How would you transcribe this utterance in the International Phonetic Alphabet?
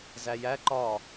z æ j æ ǃ ɒ

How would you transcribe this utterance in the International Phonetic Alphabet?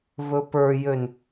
v ɵ p ə˞ j ø n

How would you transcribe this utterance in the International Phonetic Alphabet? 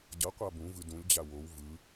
ɟ ʌ qʷ a b ũ v ɯ d ũ lʲ d͡ʑ a w o w v ɯ

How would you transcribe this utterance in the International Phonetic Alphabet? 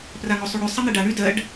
p r a ŋ o sˤ u ɽ ʉ sˤ ɐ n̪ e ɖ a ɳ y d ɜ ɖ

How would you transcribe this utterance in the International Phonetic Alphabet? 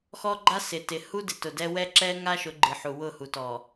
x ɔ˦ ɡ͡ǃ a˦ s ɪ˨ t ɪ˨ h u˦ d ɪ˨ t ʊ˨ d ɛ˦ w ɛ˦ ǁ ɛ˦ ŋ a˦ ʃ ʊ˨˦ ɡ͡ǃ ɨ˨ ħ u˨ w ʊ˦˨ h u˨ t ɔ˨

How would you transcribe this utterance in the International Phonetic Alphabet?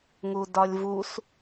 ŋ u d ɒ lʲ v u s

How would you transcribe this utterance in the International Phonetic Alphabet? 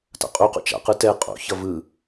t a̰ qʼ u q ṵ t͡ʃ a̰ q ɯ t ɛ qʼ o̰ ç ʌ v ɯ

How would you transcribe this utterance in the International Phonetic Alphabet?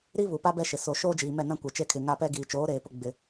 ɾ i˦ β u˨ p a˦ b ɛ˦ ʃ ɪ˨ s o˨ ʃ oː˦ d͡ʒ iː˨ m ɛ˦˨ n ã˦ kʷ ɛ˨ t͡ʃ e˦ kʰ ɪ˨ ŋ a˦ p ɛ˦ ɡ iː˨ t͡ʃ oː˨˦ ɾ eː˨ p ʊ˦ ɡ͡b ɪ˦

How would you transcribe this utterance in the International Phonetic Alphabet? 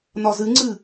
n ɒ z ɨ ŋ͡ǀ ɨ

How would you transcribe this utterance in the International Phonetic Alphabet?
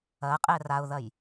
ɐ qʼ ɛ r a ʊ̯ ð ɐ j

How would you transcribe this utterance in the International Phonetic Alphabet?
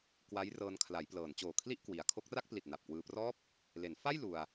k w a˦˥ j r ɤː˧ n kʰ l a˩˦ j p l ɤː˩˦ n t͡ɕ oː˨˩ kʰ l i˥˩ ʔ k w i˩˦ a̯ kʰ o˦˥ k̚ r a˥˩ k̚ p l i˨˩ t̚ n a˨˩ p̚ k w ɯː˧ p r ɔː˥˩ p̚ | l e˩˦ n f a˥˩ j l u˧ a̯

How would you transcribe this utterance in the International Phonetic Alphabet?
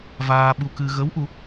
v aː˧ ɓ u˧ k ɨ˧ ɣ ə˧˥ w ʔ u˧˥

